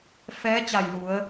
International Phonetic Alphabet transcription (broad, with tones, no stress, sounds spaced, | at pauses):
f ɛː˧˥ t͡ɕ a˧˩ j l u˩˧ ə̯